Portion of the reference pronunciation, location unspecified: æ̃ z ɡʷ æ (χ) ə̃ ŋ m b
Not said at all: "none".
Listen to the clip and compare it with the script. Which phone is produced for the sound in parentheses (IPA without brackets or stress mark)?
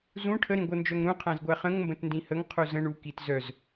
χ